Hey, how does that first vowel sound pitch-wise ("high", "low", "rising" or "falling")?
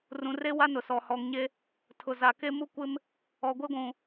low